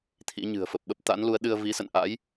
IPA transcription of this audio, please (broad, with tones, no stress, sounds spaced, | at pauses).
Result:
t̪ʰ ḭ˧˥ ɲ ɨ̤˨˩ ə̯ f ə˨˩ p̚ ɓ ə˦˥ p̚ t̪ a̰˧˥ n l u˨˦ ə̯ ɗ ɨ˧ ə̯ v i˨˦ s ə̰˧˨ n ʔ a̰˧˥ j